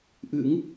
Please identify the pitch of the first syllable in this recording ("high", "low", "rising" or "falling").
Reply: rising